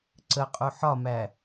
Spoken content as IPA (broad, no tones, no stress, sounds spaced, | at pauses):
ǀ ə qʼ u ħ ɒ m æ